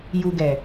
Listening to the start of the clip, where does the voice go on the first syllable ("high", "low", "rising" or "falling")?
low